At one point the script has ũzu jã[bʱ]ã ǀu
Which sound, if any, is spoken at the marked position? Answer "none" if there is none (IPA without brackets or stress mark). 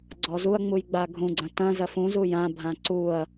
bʱ